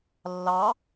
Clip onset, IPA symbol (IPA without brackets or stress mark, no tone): lː